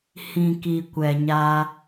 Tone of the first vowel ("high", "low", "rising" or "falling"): low